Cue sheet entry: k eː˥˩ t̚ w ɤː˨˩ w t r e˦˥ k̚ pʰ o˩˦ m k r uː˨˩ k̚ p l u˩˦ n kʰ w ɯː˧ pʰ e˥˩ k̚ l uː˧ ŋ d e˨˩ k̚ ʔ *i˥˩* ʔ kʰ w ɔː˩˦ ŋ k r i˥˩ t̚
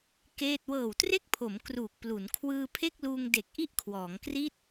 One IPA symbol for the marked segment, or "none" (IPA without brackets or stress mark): i˥˩